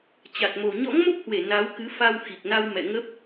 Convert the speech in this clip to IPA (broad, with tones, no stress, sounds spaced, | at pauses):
t͡ɕ a˨˩ t̚ m o˨˩ ɲ ɔ̰˧˥ ŋ m o˦˥ p̚ h w e˧˩ n a˨˦ w k ɨ˨˦ f a˧ w x i˨˩ k̚ n a˧ w m ɛ̰˧˨ ŋ ə˦˥ p̚